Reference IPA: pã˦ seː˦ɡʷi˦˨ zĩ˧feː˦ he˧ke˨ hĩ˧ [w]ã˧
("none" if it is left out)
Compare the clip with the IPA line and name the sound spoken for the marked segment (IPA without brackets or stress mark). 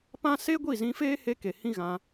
ɣ